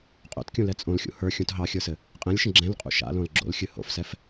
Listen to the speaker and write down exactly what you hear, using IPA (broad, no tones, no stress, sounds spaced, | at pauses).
qʼ o̰ t kʲ ũ l ɛ t͡sʼ õ l xʲ ṵ h ə˞ xʲ ũ t ɦ ɑ xʲ ə˞ s ɘ | qʼ ɛ̃ lʲ ʃ ə̃ ɡ͡ǁ ɛ̃ l qʼ ṵ ʃ a̰ l õ l ɡ͡ǁ o̰ l xʲ ɨ h o̰ f s ɛ f